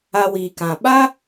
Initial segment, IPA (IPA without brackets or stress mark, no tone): a